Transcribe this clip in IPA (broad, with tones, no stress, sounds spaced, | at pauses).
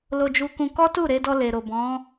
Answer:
l o˧ d͡ʒ u˧ k ũ˧ k ɔ˦ t u˦˨ ɾ e˧ d ɔ˧ l e˨ ɾ o˨ b ɔ̃˨˦